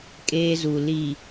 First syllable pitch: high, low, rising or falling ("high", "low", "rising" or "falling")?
high